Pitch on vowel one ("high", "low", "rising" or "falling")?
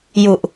low